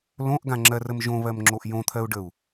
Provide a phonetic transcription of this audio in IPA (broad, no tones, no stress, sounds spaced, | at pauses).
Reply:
l õ ʔ ɡ ã ŋ͡ǁ ɜ r ə m ʒ õ β ɜ m ŋ͡ǁ o ʔ j õ t̪ʰ ɜ u̯ ɖ ə u̯